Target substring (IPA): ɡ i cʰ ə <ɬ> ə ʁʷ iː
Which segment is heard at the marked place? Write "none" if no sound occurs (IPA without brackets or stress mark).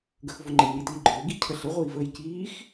ɬ